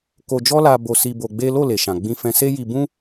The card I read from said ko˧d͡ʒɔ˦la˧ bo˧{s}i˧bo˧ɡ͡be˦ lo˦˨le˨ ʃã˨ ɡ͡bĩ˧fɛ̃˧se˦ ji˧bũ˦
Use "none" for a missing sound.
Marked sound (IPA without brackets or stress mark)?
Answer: s